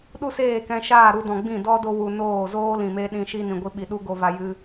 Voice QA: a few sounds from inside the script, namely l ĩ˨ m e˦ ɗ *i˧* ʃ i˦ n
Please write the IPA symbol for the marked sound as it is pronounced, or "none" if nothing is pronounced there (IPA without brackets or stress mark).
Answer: ĩ˧